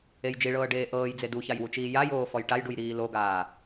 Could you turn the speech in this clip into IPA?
e j d͡ʒ i ɭ ɤː ɖ eː ʔ ɤː j d͡z e d u ç a j w u t͡ʃ iː j a j oː f ɔ j ʈ a j ɖ u j ɾ iː l o ɡ aː

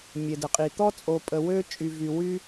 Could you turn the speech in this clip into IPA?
mʲ e˩ d ə˩ qʼ i˩ t̪ ɔ˥ t͡sʼ o˨ pʼ ə˨ w ø˦ t͡ʃʼ y˨ v y˨ w y˥

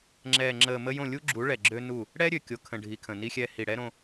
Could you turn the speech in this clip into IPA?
ŋ͡ǁ ɛː˨ ŋ͡ǁ əː˨ m ə˦ j õ˦˨ lʲ u˦ ɡ͡ǁ u˨˦ ɭ ɛ˨ ɡ͡ǁ ø˦ n u˦˨ | ɽ ɛ˦ ɾʲ ø˨ kʲ o˨ kʰ ə̃˨ ɖʱ i˨ kʰ ə̃˨ n i˦ xʲ ɛ˦ h i˨ ɽ ɛ˦ ɾ õ˦

